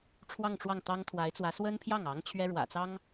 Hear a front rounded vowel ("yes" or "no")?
no